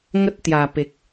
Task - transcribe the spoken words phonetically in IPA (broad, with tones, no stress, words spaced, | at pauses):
ŋə˦t̚ t̪ja˨˩pe˨k̚